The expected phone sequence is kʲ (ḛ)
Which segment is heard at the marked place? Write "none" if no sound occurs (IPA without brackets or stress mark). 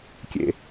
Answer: ḛ